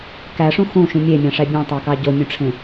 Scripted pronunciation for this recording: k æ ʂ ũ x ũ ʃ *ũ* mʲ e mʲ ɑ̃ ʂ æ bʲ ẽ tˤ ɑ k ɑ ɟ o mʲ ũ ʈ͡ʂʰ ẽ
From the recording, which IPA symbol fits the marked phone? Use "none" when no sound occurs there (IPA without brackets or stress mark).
ũ